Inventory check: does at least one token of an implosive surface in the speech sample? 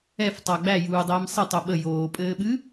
yes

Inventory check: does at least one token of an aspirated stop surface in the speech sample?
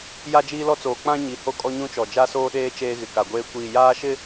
no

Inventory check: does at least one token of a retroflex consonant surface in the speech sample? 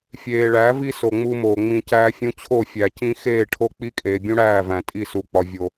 yes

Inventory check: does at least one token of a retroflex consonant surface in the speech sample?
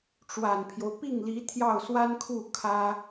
yes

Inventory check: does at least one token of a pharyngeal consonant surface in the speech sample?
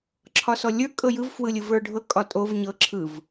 no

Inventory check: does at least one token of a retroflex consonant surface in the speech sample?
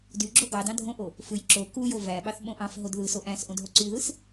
no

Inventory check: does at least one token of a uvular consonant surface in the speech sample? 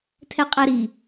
yes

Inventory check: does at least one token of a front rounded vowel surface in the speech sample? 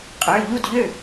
yes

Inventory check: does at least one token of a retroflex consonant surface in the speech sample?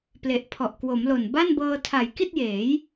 no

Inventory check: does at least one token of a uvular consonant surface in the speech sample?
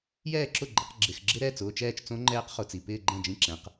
yes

